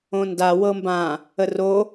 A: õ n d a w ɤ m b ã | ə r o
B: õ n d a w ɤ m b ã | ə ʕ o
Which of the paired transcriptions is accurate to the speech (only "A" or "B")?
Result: A